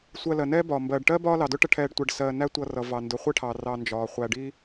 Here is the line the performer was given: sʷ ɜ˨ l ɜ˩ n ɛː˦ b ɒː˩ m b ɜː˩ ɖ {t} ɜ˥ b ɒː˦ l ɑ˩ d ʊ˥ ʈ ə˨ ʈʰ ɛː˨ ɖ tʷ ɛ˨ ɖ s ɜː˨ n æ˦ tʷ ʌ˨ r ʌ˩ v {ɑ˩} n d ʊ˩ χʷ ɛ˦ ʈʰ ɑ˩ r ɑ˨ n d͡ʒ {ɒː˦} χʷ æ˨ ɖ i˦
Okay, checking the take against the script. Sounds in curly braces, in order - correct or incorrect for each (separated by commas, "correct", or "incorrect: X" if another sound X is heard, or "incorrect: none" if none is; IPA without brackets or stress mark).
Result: incorrect: ʈ, correct, incorrect: ɒː˩